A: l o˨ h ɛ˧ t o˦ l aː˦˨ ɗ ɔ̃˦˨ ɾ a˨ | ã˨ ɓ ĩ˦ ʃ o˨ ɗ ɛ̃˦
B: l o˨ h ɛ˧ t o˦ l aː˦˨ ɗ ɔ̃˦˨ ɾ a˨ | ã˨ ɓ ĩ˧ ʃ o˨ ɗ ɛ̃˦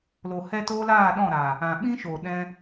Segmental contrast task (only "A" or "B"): A